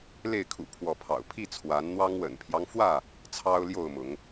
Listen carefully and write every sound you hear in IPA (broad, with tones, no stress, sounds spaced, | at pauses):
l e˥˨ ɪ̯ kʰ ṵ˨˩ pʰ w ɔ˨˦ pʰ ɑ̰˨˩ ʊ̯ pʰ i˥˨ t͡sʰ w a˨˦ n n̪ w ɑ˦ ŋ w ə̰˨˩ n pʰ j ɑ˦ ŋ f w ä˥˨ | t͡sʰ ɑ˦ ʊ̯ l j o˥˨ ʊ̯ m ʊ˨˦ ŋ